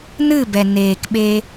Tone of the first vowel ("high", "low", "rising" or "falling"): falling